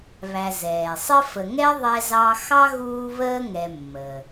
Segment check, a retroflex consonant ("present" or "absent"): absent